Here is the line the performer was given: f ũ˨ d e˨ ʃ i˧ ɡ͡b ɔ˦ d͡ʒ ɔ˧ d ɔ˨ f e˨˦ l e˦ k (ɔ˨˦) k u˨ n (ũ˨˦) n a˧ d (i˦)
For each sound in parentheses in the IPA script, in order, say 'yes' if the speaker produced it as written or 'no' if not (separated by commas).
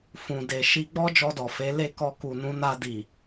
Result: no, yes, no